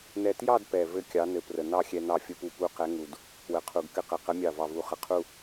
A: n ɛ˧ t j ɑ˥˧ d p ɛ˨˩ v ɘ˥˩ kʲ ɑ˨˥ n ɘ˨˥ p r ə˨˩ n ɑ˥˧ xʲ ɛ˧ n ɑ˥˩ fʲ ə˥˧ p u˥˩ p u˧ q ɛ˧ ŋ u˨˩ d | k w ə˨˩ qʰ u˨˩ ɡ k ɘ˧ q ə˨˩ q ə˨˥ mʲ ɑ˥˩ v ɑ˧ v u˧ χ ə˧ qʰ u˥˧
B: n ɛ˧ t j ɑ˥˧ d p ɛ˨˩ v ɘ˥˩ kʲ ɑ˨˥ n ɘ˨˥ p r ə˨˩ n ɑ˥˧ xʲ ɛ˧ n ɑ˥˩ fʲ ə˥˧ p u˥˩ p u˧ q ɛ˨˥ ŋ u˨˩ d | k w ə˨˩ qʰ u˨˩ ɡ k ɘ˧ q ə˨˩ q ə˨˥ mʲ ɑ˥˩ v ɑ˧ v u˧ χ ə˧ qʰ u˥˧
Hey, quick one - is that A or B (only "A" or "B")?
B